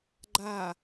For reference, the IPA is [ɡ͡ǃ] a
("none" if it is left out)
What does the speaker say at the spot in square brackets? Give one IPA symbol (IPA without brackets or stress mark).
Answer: ɡ͡ǃ